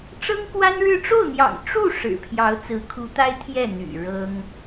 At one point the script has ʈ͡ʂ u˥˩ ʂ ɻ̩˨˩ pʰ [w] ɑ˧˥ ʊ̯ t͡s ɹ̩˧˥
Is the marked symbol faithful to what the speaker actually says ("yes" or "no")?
no